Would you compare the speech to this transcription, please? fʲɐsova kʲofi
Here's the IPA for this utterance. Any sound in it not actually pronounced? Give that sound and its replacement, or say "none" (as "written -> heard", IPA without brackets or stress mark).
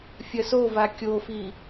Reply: none